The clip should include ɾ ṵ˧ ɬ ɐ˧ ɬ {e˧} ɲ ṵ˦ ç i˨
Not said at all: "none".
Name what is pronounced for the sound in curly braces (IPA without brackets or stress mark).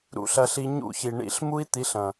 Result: i˧